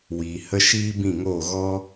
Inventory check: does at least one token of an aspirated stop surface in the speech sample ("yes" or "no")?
no